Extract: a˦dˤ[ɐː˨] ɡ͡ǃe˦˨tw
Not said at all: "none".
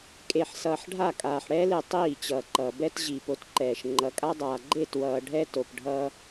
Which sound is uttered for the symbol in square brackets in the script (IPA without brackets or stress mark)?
aː˨